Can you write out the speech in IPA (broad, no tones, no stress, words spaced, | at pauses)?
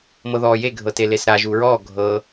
mɤðɔːje ɡʱɤtelesɾa ʒuːɹɔː ɡʱɤ